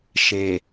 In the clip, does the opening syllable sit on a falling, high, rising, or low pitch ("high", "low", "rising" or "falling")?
low